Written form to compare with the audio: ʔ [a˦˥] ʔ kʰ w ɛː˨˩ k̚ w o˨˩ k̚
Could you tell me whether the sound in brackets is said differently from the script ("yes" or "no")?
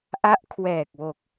no